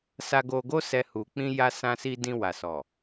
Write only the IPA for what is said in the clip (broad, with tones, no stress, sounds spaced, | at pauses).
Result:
s a˨ ɡ o˨ ɡ o˧ s ɛ˨ h u˨ k͡p ĩ˧ j a˧ s ã˧ s i˧ d ĩ˧ w a˨ s ɔ˨